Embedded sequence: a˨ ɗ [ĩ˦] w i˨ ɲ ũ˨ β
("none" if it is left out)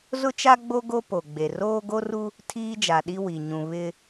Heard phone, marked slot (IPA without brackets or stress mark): i˦